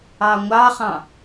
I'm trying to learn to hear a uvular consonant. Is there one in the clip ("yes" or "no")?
yes